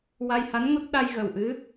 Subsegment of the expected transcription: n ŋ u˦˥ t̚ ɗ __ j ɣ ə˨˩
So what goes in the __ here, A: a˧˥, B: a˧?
B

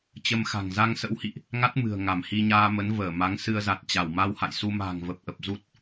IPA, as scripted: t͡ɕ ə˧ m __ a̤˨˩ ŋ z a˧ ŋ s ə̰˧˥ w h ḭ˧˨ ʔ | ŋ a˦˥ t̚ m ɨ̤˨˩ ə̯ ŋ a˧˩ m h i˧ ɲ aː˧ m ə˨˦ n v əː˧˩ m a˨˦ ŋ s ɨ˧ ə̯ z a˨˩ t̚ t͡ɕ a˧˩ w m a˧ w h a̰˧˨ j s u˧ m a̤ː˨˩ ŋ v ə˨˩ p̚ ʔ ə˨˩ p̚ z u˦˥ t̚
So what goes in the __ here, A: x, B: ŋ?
A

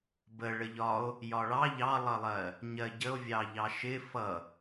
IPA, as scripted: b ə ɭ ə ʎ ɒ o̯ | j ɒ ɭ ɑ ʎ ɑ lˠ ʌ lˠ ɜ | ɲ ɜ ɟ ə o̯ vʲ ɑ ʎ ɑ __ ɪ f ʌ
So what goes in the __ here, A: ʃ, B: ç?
A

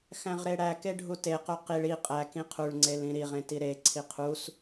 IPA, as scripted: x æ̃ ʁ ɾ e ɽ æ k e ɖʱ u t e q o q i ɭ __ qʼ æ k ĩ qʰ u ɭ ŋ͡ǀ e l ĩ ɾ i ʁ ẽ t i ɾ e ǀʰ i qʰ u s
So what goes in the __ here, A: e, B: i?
B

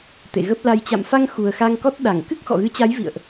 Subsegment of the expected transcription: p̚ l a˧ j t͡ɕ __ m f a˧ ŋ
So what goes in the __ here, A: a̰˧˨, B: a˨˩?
A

